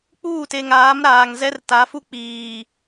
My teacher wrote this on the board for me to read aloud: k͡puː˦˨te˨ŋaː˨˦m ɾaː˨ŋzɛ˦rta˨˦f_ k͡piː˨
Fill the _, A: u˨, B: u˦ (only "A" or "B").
B